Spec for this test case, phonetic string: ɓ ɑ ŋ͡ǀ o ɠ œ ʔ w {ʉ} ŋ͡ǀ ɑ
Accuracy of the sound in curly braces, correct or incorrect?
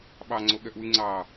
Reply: correct